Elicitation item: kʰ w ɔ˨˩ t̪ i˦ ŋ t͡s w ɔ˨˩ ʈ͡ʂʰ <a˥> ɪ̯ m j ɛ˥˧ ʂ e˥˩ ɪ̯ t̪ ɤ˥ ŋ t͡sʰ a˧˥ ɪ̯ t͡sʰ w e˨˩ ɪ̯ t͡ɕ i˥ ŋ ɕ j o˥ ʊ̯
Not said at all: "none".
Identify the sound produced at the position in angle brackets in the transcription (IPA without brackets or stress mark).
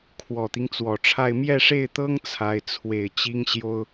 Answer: a˥˧